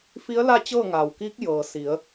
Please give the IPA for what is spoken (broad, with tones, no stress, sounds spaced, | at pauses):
f i˧˥ ə̯ l a˥˨ t͡ɕ ɤː˥˨ ŋ aː˩ w k iː˧˥ k̚ j ɤː˩ s i˩˧ ə̯